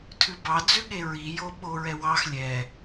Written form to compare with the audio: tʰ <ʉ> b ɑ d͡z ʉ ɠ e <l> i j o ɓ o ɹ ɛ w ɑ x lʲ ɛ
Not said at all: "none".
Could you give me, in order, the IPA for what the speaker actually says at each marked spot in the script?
ʉ, ɹ

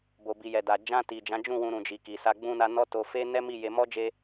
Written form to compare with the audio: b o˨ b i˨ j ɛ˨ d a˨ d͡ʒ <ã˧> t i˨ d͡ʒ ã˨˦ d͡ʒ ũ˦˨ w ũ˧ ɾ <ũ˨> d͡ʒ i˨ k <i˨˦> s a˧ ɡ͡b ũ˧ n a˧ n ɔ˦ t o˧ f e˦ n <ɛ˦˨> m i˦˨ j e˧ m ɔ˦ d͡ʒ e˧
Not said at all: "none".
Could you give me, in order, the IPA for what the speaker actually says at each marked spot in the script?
ã˧, ũ˨, i˨, ɛ˦

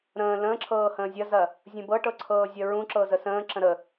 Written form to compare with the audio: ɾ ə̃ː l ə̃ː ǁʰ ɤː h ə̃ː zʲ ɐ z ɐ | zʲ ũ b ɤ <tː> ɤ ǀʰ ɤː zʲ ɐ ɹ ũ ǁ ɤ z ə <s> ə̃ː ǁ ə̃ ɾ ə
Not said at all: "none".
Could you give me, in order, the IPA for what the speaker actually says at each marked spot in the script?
ʈ, s

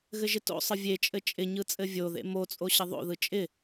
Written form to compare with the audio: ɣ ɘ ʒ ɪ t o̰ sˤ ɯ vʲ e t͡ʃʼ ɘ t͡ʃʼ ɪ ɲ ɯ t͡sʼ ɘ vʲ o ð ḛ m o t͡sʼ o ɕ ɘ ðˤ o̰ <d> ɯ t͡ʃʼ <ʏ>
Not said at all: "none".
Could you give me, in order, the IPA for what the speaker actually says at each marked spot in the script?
ð, ɪ

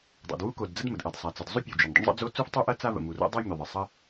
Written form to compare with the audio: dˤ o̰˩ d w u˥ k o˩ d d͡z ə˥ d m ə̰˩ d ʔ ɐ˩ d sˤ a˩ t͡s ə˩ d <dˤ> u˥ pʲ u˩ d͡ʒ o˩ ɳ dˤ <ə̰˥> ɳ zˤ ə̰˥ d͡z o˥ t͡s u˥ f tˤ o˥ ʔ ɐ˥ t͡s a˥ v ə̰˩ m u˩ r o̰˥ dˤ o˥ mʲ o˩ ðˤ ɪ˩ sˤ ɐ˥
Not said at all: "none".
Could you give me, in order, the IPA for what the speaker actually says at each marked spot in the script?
zˤ, ə̰˥

